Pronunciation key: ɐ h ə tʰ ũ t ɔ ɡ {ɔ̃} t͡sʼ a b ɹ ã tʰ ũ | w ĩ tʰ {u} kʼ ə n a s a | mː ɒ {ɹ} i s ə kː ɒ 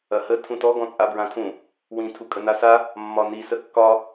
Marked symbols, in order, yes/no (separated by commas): yes, yes, no